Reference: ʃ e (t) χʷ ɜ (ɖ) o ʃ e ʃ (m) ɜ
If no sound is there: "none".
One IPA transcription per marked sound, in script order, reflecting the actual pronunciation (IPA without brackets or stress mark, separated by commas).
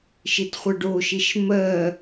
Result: t, ɖ, m